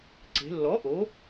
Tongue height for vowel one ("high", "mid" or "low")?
mid